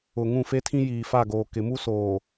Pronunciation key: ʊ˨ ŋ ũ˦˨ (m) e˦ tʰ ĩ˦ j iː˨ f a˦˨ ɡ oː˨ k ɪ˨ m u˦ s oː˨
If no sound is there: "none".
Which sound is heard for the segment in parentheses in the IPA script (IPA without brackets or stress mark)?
f